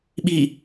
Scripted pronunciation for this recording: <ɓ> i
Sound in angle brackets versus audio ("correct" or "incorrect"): correct